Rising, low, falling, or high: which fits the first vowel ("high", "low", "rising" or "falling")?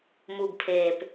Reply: low